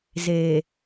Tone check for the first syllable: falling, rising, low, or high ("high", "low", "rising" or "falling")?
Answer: low